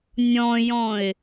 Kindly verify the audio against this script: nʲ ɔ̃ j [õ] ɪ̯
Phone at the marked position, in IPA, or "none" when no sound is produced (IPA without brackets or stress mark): ɔ̃